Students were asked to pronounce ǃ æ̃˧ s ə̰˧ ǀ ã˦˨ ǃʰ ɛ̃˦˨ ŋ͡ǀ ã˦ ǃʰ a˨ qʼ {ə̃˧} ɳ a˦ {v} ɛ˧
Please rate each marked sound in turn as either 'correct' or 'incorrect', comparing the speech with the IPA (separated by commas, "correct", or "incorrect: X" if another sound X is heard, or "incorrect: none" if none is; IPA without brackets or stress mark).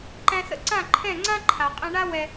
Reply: incorrect: ɛ̃˧, incorrect: w